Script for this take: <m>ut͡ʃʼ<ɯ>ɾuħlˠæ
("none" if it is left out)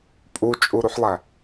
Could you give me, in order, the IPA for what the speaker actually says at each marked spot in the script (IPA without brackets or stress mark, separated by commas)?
pʼ, u